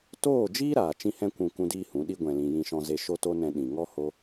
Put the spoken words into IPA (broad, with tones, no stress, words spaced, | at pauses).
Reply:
toː˦˨d͡ʒiː˦ ɾaː˨t͡ʃĩ˦hɛ̃˦ kʷũ˧ kũ˦diː˦hũ˨˦ɗi˦ ɡʷɛ̃˨lĩ˨ jĩ˧ʃɔ̃˧ ze˧ʃo˦to˦nɛ̃˧ ɗĩ˨ŋɔ˦ ho˦